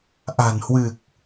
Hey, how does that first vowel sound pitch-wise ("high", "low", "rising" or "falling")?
low